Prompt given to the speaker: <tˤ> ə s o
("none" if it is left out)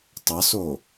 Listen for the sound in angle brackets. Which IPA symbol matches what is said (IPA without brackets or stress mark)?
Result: tˤ